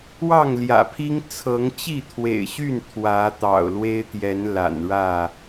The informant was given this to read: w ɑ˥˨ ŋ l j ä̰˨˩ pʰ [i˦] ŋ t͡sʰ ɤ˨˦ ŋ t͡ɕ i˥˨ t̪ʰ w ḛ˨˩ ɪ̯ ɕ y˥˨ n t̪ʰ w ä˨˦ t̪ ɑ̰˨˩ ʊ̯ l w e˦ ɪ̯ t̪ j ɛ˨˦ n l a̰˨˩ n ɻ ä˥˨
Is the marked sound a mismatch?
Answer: no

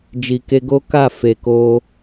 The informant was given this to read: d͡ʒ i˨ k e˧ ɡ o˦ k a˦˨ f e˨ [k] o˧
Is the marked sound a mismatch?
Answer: no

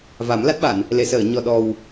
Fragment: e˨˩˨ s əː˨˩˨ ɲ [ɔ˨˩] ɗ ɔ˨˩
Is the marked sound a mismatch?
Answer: no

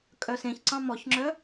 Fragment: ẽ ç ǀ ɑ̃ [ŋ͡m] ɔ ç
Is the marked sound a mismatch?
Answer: yes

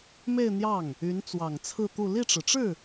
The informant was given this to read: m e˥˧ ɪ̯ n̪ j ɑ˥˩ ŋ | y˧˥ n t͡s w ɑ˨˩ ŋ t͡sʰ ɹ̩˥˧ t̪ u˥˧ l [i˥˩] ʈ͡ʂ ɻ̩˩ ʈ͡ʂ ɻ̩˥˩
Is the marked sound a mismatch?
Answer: no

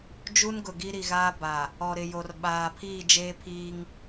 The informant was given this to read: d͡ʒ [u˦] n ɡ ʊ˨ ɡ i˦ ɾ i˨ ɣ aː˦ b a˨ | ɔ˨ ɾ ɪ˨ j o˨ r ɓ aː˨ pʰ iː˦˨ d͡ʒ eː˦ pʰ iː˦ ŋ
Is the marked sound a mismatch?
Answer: no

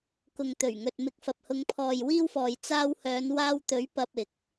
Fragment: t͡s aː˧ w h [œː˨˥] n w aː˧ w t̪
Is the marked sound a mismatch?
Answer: yes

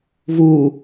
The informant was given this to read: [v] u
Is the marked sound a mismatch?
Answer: no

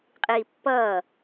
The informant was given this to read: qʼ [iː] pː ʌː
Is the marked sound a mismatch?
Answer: no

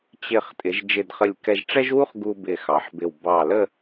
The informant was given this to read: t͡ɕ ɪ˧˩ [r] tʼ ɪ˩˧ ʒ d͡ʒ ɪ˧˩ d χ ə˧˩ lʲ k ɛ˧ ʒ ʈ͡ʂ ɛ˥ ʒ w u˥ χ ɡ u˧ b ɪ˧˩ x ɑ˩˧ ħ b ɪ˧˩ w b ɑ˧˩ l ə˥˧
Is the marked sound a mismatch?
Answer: yes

